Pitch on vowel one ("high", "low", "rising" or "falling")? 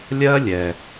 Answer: high